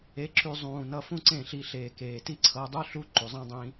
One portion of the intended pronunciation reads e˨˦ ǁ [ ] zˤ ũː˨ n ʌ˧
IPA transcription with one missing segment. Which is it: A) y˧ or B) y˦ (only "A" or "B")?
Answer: A